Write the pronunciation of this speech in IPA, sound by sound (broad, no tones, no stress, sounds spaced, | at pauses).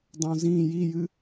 dˤ õ z ĩ j i j ɨ